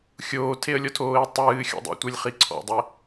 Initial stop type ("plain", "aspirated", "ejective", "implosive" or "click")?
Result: aspirated